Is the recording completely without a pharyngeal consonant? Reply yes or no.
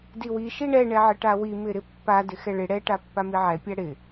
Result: no